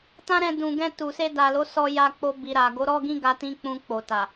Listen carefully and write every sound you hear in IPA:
t ã˦ ɾ ɛ̃˧ d ũ˨ ɡ ɛ̃˧ t u˨ s e˧ d a˨ l o˨˦ s ɔ˧ j a˧ k͡p o˧ b i˨ ɾ a˨ ɡ o˨˦ ɾ ɔ˦ ɡ ĩ˦ ɡ a˧ t ĩ˦ k͡p ũ˧ k͡p o˨ t a˨

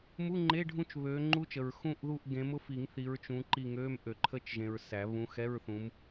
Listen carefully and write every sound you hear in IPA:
m u˧˥˧ ŋ͡ǃ e˧˥˧ ɖʱ ũ˦˨ t͡ʃ β ø˨˦ ŋ͡ǃ u˦˥ t͡ʃ ə˨ ɹ x ũ˦˨ ʔ ð u˦˨ ʔ ɡ ẽ˨˦ m ʊ˦˥ f i˨˩˦ ŋ θ i˨˦ ɹ t͡ʃ ũ˨˦ ǃ i˦˨ ŋ ø˧˥˧ m ʔ ø˨˩˦ ǃʰ ə˦˥ t͡ʃ ʒ ẽ˨ ɹ s æ˨˩˦ β ũ˨˦ x ɛ˧˥˧ ɹ θ ũ˨˦ m

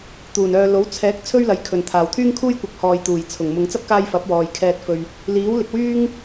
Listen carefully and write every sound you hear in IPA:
t̪ uː˨˩ n œː˨ l o˨˥ w t͡sʰ ɛː˨˥ k̚ t͡sʰ ɵ˥ ɥ l ɐ˨˥ j kʰ ɵ˨˩ n t̪ʰ aː˨˩ w t̪ʰ yː˥ ŋ kʰ uː˥ j kʷ ɐ˨˥ k̚ h ɔː˨ j t̪ uː˨˩ j t͡sʰ ʊ˨˩ ŋ m ʊ˨ ŋ t͡s ɐ˥ p̚ k aː˧ j f ɐ˨˥ p̚ w ɔː˨ j kʰ ɛː˧ t̚ f ɵ˧ ɥ | l iː˨˥ w l ɪ˨ k̚ w yː˥ ŋ

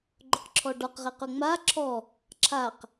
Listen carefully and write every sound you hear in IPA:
ɡ͡ǃ ʊ q ǁʰ ɔ ɖ ɔ q ʁ e q ʊ ŋ͡m a ǁʰ ɔ | ǁʰ a q

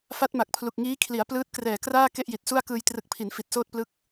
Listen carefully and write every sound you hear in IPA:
f a˦˥ t̚ m a˨˩ k̚ pʰ l u˨˩ k̚ ŋ iː˦˥ kʰ l i˩˦ a̯ p l ɯː˦˥ t̚ k r ɛː˨˩ k r aː˥˩ k e˥˩ ʔ j i˨˩ t̚ s u˥˩ a̯ k ɯː˧ j t r ɯ˨˩ k̚ pʰ i˩˦ n f i˨˩ t̚ s oː˥˩ t̚ p l ɯ˦˥ k̚

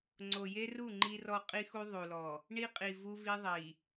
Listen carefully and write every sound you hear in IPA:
ŋ͡ǀ o˨ j e˦ r u˦˨ ŋ͡ǃ i˦ r ɔ˦ qʼ i˦ x u˦ ðˤ u˨ l ɔ˨ | ɳ i˦ qʼ i˨ v u˦ v i˦ ðˤ i˨

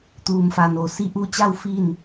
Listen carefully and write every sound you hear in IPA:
t̪ uː˧ m f a˧ n o˧˩ s i˧ ʔ uː˧ t͡ɕ a˥˨ w f i˥˨ n

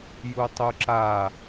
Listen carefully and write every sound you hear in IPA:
j u tˤ u ǁ a

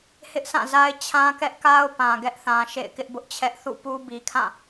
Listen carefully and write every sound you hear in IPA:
h ɪ˦ ʔ s ã˦˨ z a˦ ɪ̯ t͡ɕʰ ã˦ k ɛ˦ ʔ k a˦ ʊ̯ p ã˨ ɡ ɛ˦ ʔ θ ã˨ ʃ ḛ˦˨ ɪ̯ k ɪ˦ ʔ b ʊ˦ ʔ t͡ɕʰ ɛ˦ ʔ θ ṵ˦˨ p u˦ b i˨ kʰ ã˦˨

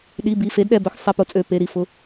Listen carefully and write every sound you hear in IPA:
ɗ i˩˧˩ b i˩˧˩ f e˩˥ d ɗ ɛ˩˧˩ b ɵ˩˥ x sˤ e˩˧˩ p ʊ˩˥ t͡sʼ ø˩˧˩ p e˩˧˩ ɾ i˩˥ f ʊ˩˧˩

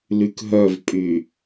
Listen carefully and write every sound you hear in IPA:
l y k ɦ œ v pʼ y

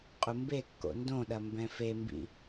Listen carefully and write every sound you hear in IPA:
qʼ u m b e kː o̰ n d õ ɗ ɐ m b ɛ̃ f e m b ḭ

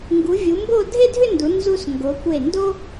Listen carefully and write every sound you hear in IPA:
ŋ ɡ u˩˧ vʲ u˩˧ m b o˥˧ dʱ e˥˧ dʱ ʏ˥˧ n d u˩˧ n z u˧ s ŋ ɡ o˩˧ kʷ e˧˩ n d o˥

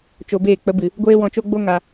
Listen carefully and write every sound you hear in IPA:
t͡ʃ o˧ b eː˦˨ k͡p ə˨˦ b ɨ˨ | ɡʷ eː˦ w ɔ̃˧ t͡ʃ o˦ ɡ͡b o˦ ŋ a˧

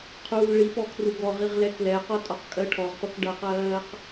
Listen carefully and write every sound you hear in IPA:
qʰ uː l ɭ i p ɔ kʰ r u ɡ ɔ ʁ i ʁ l ɛ k l ɛ q ɔ tʼ ɔ q kʼ ɜ ʈʰ ɔ ʁ p ʌ k ɖ ʌ q ɜː q

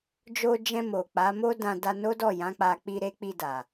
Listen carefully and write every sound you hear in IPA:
d͡ʒ o˧ d͡ʒ ɛ̃˧ m o˨ k͡p a˨˦ m o˦ d ã˧ d a˧ n o˦ d ɔ˦˨ j ã˨˦ k͡p a˧ k͡p i˧ ɾ e˦ k͡p i˧ d a˨

